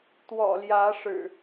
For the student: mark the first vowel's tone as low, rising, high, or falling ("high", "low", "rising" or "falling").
low